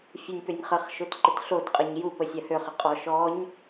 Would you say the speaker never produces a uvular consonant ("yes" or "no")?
no